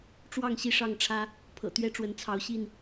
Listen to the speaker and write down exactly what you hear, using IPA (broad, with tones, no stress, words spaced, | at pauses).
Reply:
ʈ͡ʂwɑ˥˨ŋɕi˥˨ ʂɑ˥˨ŋʈ͡ʂʰä˦ | pʰɤ̰˨˩t̪ɥɛ˥˨ʈ͡ʂwə˨˦n t͡sʰɑ˨˦ʊ̯ɕi˥˨n